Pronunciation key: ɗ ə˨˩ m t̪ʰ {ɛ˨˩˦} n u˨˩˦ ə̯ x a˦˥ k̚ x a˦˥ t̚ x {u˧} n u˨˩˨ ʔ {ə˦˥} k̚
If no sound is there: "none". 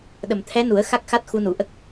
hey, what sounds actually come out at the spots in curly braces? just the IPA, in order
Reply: ɛ˧˥, u˧, ə˦˥

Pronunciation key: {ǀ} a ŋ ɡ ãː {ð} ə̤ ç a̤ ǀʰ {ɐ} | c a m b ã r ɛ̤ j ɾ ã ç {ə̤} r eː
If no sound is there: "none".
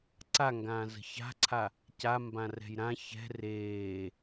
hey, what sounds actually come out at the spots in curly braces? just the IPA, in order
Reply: ǀ, z, a, ɛ̤

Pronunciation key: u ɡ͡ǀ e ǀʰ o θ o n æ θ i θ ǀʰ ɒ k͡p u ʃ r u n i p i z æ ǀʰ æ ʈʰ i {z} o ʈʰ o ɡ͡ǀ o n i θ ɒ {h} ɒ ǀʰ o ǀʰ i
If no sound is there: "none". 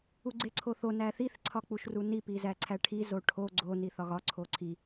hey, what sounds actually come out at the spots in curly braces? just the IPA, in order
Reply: z, ɣ

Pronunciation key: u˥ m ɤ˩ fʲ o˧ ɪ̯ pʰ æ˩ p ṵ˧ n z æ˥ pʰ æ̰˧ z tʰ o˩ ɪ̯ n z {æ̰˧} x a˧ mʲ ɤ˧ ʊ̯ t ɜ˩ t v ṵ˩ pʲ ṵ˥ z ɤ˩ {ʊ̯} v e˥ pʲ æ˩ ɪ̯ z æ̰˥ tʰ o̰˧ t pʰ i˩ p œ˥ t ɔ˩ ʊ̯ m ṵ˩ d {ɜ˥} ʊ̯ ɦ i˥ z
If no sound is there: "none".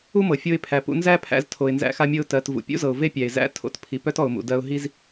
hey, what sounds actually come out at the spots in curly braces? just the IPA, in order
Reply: æ̰˧, ʊ̯, ɜ˧

